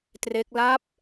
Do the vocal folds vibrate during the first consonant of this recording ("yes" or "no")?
no